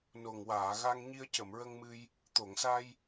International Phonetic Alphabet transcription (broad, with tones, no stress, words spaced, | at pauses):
no˨˩ŋwaː˨˩˨ɣa˧ŋ ɲi˧ə̯cə˨˩˨mɹə˧ŋmɨ˧j | t̪o˨˩˨ŋsa˧j